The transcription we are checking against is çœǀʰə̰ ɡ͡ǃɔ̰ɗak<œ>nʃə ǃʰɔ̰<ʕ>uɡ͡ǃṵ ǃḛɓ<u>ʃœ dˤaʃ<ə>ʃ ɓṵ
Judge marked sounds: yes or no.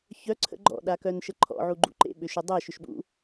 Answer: yes, yes, no, no

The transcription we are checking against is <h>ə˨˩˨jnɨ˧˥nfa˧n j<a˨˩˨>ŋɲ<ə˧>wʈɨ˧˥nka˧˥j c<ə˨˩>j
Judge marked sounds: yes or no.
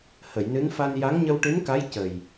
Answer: yes, no, yes, yes

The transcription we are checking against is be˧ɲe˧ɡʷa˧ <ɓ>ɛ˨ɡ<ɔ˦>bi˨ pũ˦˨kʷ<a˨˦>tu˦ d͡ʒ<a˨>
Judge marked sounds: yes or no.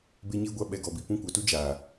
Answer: yes, no, yes, no

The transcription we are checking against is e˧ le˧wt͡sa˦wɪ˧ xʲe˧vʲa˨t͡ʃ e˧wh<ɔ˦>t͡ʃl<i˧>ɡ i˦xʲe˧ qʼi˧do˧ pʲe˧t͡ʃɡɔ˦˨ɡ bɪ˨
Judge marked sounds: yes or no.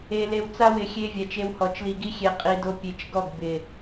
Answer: no, yes

